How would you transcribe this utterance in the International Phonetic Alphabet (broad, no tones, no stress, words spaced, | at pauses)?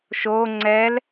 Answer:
ʃo ŋ͡ǀɛl